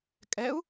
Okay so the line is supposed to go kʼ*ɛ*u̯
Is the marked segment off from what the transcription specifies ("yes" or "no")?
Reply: no